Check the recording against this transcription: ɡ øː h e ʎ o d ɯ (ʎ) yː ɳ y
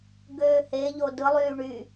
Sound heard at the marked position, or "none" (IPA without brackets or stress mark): lˠ